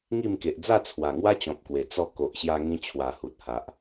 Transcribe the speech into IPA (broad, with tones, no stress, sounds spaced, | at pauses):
ŋ i˥˧ m k e˨ ʔ d͡z a˥˧ t͡sʰ w a˨˩ ŋ w a˦ t͡ɕ ɔ̃˨ p̚ k w e˨˩ t͡s ɔ˧ k o˨ ʔ ɕ j a˧ ŋ ĩ˧ t͡ɕʰ w a˨˩ h u˨ t̚ h a˨ ʔ